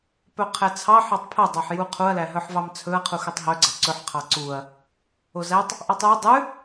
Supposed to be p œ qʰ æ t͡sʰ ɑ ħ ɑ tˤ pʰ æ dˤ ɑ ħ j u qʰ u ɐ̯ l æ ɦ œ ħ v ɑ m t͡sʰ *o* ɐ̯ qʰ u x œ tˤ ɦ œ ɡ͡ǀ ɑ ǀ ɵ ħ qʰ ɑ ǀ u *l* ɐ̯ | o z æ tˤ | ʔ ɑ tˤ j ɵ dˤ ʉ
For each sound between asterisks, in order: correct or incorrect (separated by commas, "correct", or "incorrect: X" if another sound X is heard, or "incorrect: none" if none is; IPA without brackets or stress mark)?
incorrect: ɵ, incorrect: none